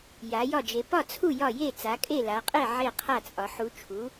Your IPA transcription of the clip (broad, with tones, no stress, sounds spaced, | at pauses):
j a˨˦ j ɒ˥˨ d͡ʒ e˨˦ p ɒ˥˨ t͡sʰ u˥˨ j ɒ˥˨ j e˥˨ t͡s a˨˦ kʼ e˥˨ l a˨˦ qʼ e˥˨ ʕ e˥˨ qʰ a˥˨ t͡sʼ ɒ˨˦ ħ u˨˦ t͡ʃʰ u˨˦